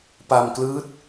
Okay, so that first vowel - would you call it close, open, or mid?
open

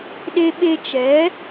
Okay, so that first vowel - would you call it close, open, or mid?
mid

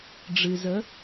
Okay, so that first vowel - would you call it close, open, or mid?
close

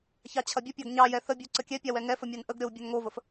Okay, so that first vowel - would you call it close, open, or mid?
open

